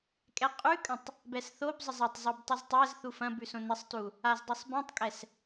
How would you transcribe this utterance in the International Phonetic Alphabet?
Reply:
kʼ ɛ qʼ ʉ kʼ ə̃ tˤ | b ɛ s θ o b zˤ ə zˤ ɐ tˤ zˤ o b tˤ i z tˤ æ z θ u f ɐ̃ b ʉ s õ n ɘ sˤ t u | a z dˤ ʉ sˤ b ĩ tˤ kʼ ɛ s

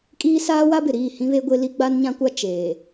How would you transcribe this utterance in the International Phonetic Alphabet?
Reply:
kʼ iː˦ s aː˦ w a˦ b ɪ˨ ɾ iː˦˨ h ĩ˦ β e˦ ɡʷ e˦ l i˦ ɡ͡b a˦ n ɲ ã˦ kʷ a˦ t͡ʃ eː˨

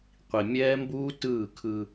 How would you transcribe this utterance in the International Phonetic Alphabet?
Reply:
qʷ i˨ mʲ ɛː˦ m b uː˦ t ɯː˦˨ kʰ ɯ˦

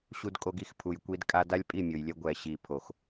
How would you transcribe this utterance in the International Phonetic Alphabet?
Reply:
ɕ u˧ d kʼ o˧ ɡ i˦ x pʰ u˨ j kʷ i˧ d kʼ a˧ d a˦ lʲ pʼ i˦˨ mʲ o˨ j lʲ ɛ˧ ɡʷ ɛ˨ ɕ i˨ pʰ o˨ x

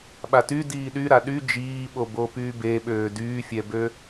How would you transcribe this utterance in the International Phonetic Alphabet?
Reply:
ɓ a t y d iː ɗ y ɾ a ɗ y d͡ʒ iː ɓ o b o p yː b e ɓ øː d yː fʲ ɛ b ø

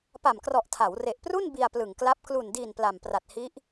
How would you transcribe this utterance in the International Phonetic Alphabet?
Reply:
p a˨˩ m k r ɔ˨˩ ʔ tʰ a˩˦ w r e˨˩ ʔ p r u˥˩ n b i˧ a̯ p l ɯ˨˩ ŋ k l a˦˥ p̚ k l u˨˩ n d iː˨˩ n p l a˨˩ m p r a˨˩ t̚ h i˦˥ ʔ

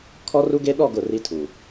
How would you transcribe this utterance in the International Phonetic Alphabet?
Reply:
kʰ ɔ˦ r u˦ ɡ e˦ ɗ ɔ˦˨ ɡ ʊ˦˨ r i˦ tʰ u˨

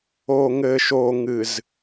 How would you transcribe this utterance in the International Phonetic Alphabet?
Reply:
oː˨ ŋ ɘː˨ ʃ oː˨ ŋ ɨ˨ z

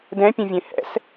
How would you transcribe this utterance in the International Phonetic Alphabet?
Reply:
d ɛ̃ pʲ ũ vʲ ẽ h ɛ̰ s

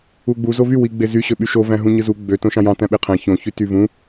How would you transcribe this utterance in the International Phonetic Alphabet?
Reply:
u ɡ͡b u z o v y w i ɡ͡b e z y ɕ ø ɓ y ʃ o v æ̃ ɦ ũ ɲ ɯ z u ɡ͡b ø t õ ʃ ɑ̃ j ɑ̃ t æ̃ ɓ e qʰ æ̃ ç õ ç y t y v ũ

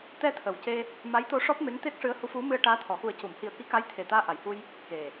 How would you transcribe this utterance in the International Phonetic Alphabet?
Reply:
t̪ ɛ˧ t̪ʰ ə˨˩ w c e˧ | m a˧˥ j t̪ o˧˥ ʂ ɔ˦˥ p̚ m e˧˥ ŋ t̪ e˦˥ k̚ ʂ ɨ˧˥ ə̯ h u˧˥ f u˧˥ m ɨ˧ ə̯ ʈ aː˧˥ t̪ʰ ɔ˨˩ x u˨˩˦ ə̯ c u˨˩˨ m h i˨˩ ə̯ k i˧˥ k a˧˥ j t̪ʰ e˨˩ t̪ aː˧ ʔ a˨˩˨ j h u˧ j | k e˨˩

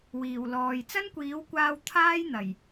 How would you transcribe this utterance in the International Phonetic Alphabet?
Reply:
w iː˨˩ w l ɔː˨ j t͡s ɐ˥ n kʷ iː˨˥ w kʷ aː˧ w t̪ʰ aː˥ j n̪ ɐ˨˩ j

